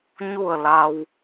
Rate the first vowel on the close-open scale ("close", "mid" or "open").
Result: close